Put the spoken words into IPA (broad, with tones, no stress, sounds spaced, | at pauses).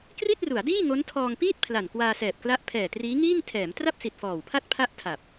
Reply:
k r i˥˩ t̚ r u˩˦ a̯ d iː˥˩ ŋ o˦˥ n tʰ ɔː˧ ŋ p iː˥˩ t̚ pʰ l a˨˩ n k w aː˧ s ɛː˨˩ p̚ k l a˦˥ ʔ pʰ ɛː˨˩ t r iː˦˥ ŋ iː˥˩ ŋ tʰ ɛː˩˦ m t r a˥˩ p̚ s i˨˩ t̚ f ɔː˨˩ w pʰ a˥˩ t̚ pʰ a˥˩ ʔ tʰ a˨˩ p̚